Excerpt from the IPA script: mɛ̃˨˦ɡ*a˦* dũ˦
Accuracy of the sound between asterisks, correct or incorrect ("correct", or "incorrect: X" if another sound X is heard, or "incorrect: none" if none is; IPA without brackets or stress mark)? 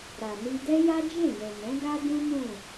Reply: correct